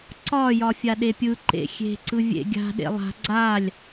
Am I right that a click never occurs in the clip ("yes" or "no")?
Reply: no